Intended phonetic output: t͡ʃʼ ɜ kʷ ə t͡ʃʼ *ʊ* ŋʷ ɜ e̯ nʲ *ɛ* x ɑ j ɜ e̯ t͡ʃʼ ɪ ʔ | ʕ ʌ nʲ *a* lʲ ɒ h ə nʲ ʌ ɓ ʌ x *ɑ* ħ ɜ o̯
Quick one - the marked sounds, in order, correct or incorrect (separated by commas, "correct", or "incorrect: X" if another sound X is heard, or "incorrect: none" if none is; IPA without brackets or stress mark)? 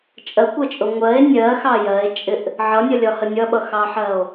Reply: correct, incorrect: ɜ, incorrect: ʌ, correct